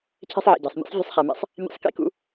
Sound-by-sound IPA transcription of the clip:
cʰ ɛ̤˥ sˤ ʕ ḭ˩ ɟ æ̤˩ sˤ mʲ ɛ̰˥ sˤ vʲ ṳ˥ sˤ χ ɛ˩ m ḛ˥ sˤ | mʲ æ̰˥ sˤ k ḭ˥ k ṵ˥

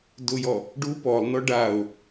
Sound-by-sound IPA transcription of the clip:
d ʊ j ɔ | ɖ u p ɔ lˠ n ɔ ɖ a ʊ̯

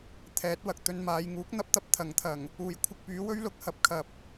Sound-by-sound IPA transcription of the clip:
t̪ʰ ɛː˨˥ t̚ w ɐ˨ k̚ t̪ ɵ˧ n m aː˨˧ j ŋ uː˨˥ k̚ n̪ ɐ˥ p̚ t̪ ɐ˧ p̚ t̪ʰ ɐ˨˥ ŋ t̪ʰ ɐ˨˩ ŋ | uː˨˩ j kʷʰ ɪ˧ k̚ p yː˨˥ w ɵ˥ ɥ l ʊ˨˥ k̚ h ɐ˧ p̚ kʰ ɐ˨ p̚

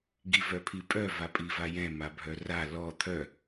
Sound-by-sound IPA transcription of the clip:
ɡ i v œ pʰ i pʼ œ v a pʼ i v a j ɛ̃ m a bʱ œ r a l ɔ t̪ʰ œ

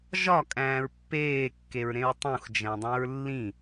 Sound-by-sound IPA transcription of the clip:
ʒ ɒ kʼ æ̃ː ɹ pː eː kː e ɹ ɾ ẽ ɹ tˤ ũ x d͡ʒ æ̃ dˤ æ̃ ɹ lː ĩ

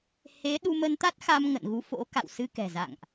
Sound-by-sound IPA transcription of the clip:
h e˨˦ ɗ u˧ m ə˧ n t̪ a˦˥ t̚ x a˧ m ŋ ə̰˧˨ n ɣ u˨˦ f o̰˧˥ k a̰˧˨ w s ɨ˧ k ɛ̤˨˩ z a̰˧˨ ŋ ʔ

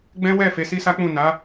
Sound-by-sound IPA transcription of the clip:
ɡ͡b ɛ̃˦ w ɛ˦˨ f e˨˦ s i˦ s a˦ k͡p ũ˦˨ n a˨˦

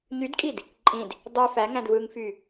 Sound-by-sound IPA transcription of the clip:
ɲ y d kʼ i d | ǃʼ ĩ d | dˤ ø f æ ŋ æ̃ d v ɯ ŋ f y

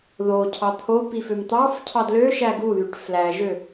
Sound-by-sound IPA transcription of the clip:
ð o cʰ ɑ t̪ʰ o p i f ø m t̪ ɑ f cʰ ɑ d l ø ʃ æ ɡ u ð y ʈ f l æ ʒ ø

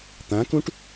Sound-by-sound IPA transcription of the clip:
t̪ ã k ũ ʈ

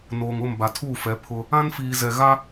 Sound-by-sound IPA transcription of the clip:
n oː˨ ŋ ʊ˦˨ m b a˨ tʰ uː˦˨ f ɛ˨˦ pʰ ʊ˦ | ã˦ n f iː˨ z ɛ˨ ɣ a˦

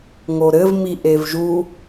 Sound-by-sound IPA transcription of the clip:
ŋ o ɾ ɘ v m i ʔ e v ʒ u

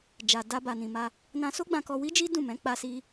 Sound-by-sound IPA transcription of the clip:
d͡ʒ a˨ d a˧ b a˨ n ĩ˨ m a˧ | n ã˧ s o˦ ɡ͡b ã˧ k ɔ˧ w i˦ d͡ʒ i˦ d ũ˦˨ m ɛ̃˨˦ k͡p a˦ s i˦

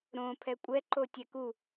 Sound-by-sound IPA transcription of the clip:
ɾ õ pʰ ɛ kʷʼ ɛ ǃ o tʲ ɛ k u

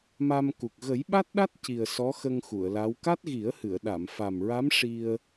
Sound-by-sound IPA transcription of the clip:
m a˧ m k u˨˩ k̚ ɣ ə˨˩˦ j ɓ a˦˥ t̚ ɗ a˦˥ t̚ c i˨˩ ə̯ s ɔ˧˥ x ə˧ ŋ x u˨˩˨ ə̯ l a˧˥ w k a˦˥ t̚ ɣ i˨˩˦ ə̯ h ɨ˨˩˨ ə̯ ɗ a˨˩˨ m f a˨˩ m ɹ a˧˥ m ʂ i˧ ə̯

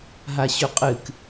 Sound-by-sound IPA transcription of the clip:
ɦ a ɕ ʉ qʼ ɨ k

